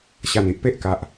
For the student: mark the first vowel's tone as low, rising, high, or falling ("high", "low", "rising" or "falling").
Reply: low